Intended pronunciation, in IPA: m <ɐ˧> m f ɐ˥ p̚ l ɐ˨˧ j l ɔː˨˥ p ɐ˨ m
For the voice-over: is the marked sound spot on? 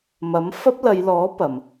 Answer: no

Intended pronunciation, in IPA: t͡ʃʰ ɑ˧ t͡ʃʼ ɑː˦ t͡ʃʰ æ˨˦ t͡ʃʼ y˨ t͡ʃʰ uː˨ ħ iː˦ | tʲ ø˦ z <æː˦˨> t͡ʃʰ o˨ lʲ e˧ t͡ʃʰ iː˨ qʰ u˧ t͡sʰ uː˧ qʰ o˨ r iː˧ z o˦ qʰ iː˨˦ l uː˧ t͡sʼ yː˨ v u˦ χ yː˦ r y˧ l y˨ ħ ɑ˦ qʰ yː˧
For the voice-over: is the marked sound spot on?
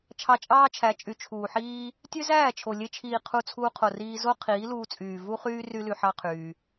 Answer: yes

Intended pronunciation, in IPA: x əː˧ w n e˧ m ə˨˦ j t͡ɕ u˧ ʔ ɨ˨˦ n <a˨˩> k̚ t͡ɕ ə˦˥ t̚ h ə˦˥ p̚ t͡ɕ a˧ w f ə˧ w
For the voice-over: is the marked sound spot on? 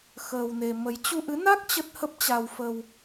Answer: no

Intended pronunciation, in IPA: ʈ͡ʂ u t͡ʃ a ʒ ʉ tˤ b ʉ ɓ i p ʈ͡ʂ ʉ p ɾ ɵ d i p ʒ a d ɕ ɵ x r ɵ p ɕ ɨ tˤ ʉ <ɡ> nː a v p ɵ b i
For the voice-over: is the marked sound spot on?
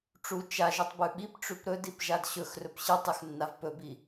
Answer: no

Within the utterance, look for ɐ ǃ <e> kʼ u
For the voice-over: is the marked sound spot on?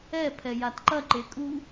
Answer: yes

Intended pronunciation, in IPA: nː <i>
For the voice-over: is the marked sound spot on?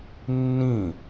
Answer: no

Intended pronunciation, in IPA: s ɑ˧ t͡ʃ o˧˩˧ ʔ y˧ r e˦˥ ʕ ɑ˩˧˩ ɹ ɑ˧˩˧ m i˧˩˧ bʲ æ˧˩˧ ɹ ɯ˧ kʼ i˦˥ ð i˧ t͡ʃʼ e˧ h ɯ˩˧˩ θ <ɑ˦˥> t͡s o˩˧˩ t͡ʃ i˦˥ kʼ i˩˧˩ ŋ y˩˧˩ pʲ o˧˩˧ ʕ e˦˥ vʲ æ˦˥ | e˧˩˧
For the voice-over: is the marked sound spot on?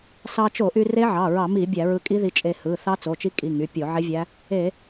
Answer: yes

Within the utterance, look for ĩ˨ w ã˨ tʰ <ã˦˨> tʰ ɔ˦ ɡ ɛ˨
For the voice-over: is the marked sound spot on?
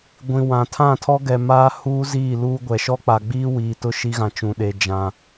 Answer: yes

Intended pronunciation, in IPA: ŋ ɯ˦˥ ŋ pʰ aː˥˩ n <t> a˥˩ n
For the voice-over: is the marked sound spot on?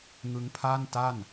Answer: yes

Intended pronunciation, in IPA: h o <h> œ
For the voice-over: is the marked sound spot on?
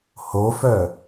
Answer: no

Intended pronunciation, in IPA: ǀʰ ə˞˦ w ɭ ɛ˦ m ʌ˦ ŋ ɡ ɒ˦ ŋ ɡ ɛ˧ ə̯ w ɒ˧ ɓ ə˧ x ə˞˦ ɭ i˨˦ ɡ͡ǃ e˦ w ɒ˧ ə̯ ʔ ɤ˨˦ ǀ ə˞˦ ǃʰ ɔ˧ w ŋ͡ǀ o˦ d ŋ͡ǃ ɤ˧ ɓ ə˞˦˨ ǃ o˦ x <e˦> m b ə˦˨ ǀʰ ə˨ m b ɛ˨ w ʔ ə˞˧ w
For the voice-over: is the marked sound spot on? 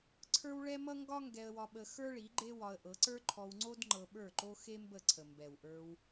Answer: yes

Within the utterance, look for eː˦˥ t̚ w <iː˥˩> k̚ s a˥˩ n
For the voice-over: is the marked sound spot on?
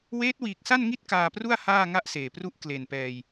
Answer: no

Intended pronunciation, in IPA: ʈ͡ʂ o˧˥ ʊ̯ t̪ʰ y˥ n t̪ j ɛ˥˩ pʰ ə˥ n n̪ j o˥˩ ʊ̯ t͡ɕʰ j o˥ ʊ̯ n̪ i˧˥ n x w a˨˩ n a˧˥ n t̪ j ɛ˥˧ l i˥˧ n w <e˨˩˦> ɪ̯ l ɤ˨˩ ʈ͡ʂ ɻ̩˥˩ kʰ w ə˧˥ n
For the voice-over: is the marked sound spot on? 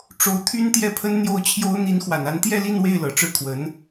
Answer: no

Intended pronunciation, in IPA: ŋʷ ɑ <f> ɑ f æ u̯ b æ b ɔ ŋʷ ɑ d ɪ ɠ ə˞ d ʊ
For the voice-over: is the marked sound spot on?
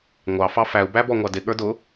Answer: yes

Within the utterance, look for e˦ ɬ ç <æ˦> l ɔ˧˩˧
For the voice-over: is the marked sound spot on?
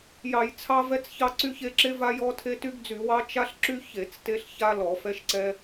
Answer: no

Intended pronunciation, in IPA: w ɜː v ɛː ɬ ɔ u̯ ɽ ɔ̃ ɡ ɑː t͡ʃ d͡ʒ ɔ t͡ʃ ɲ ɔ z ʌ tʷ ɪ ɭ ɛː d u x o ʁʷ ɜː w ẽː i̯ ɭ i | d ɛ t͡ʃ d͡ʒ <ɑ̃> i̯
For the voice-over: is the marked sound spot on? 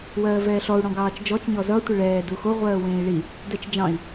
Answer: yes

